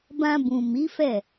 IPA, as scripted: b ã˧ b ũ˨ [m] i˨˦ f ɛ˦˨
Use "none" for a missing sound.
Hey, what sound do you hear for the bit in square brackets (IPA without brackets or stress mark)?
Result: m